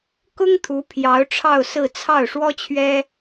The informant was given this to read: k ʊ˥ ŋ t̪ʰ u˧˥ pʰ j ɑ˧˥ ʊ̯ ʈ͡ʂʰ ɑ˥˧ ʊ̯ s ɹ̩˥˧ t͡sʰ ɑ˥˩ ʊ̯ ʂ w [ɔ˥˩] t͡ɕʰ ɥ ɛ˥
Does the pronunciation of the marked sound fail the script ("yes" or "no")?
yes